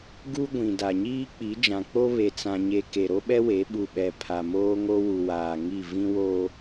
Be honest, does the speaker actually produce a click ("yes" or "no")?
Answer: no